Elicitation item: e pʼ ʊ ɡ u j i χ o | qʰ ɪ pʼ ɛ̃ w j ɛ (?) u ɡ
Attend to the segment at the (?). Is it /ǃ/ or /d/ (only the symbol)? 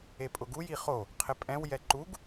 ǃ